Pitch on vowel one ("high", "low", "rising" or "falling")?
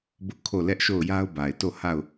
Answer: high